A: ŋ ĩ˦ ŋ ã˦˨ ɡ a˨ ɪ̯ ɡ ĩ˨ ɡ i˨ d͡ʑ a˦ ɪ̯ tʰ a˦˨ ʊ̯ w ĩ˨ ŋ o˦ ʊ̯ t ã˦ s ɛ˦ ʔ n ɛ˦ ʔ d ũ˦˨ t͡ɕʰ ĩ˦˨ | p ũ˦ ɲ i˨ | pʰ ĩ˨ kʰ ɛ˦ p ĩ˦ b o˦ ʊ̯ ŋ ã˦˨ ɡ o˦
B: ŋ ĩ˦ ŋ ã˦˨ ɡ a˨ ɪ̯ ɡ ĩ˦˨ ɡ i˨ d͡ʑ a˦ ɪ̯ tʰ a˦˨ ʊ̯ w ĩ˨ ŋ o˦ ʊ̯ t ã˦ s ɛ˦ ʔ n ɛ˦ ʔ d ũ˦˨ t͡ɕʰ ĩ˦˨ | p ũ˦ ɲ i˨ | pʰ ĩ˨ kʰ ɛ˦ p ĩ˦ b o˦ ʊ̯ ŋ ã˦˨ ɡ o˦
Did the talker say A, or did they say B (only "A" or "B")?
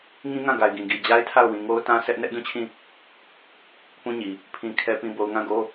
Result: A